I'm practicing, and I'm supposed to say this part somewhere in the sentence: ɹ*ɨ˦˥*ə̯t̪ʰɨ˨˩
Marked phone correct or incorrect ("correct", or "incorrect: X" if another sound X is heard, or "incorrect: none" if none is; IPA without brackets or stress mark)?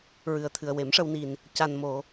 incorrect: ɨ˨˩